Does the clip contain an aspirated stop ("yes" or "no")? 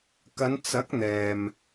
no